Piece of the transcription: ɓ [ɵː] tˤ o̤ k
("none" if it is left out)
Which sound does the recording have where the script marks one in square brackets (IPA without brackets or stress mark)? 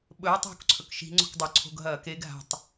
ɵː